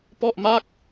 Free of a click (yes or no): yes